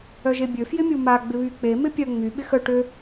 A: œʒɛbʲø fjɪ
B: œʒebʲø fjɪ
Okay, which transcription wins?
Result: B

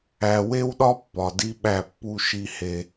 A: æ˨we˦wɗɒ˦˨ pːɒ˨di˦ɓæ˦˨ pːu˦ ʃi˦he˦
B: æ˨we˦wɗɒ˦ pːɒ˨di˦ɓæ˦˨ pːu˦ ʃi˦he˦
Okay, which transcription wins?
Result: B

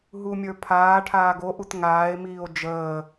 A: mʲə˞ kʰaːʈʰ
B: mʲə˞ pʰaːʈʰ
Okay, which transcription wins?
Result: B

